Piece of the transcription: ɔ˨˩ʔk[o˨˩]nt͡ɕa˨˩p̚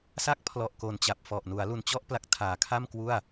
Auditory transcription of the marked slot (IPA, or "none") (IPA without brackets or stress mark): o˨˩